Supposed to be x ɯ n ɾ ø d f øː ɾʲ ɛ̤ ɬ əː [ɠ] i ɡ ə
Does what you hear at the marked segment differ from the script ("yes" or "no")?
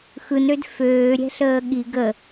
no